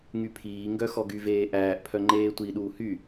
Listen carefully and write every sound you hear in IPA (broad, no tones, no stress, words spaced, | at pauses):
ŋypʰiːŋɡœ xɔɡyveː ʔæːʔpʰœ ŋ͡ǃeːtʷi ɗuːhy